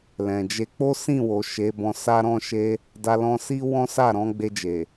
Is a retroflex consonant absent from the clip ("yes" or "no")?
yes